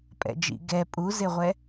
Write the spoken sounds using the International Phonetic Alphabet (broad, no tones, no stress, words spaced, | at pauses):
pʼɛ̰d͡ʒḭ ɡɛ pʼuzeʁʷɛ